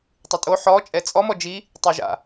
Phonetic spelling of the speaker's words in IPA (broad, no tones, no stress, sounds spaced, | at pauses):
tˤ ɪ tʼ o ħ ɔ t͡ʃʼ ɛ t͡sʼ ɔ m ɔ d͡ʒ i | tˤ ø ʒ a̰